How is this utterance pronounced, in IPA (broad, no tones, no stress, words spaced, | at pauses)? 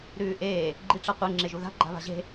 ɾʉːʔeː | ɡ͡ǃiʈ͡ʂɐqʷɨ ŋ͡ǁeʒuða̤ɡ͡ǃa̤ βa̤ʑe̤